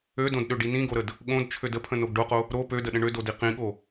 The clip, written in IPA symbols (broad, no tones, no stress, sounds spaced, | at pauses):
ø d õ d ɗ ø ɖ i n ĩ ɡ o ɾ ə d | ɠ õ d t͡ʃʰ ø d ə pʰ ə̃ n o ɡ ɖ o q o | ɾ o p ø d ə ɗ ə̃ ɳ ø d o d i q ĩ ɠ o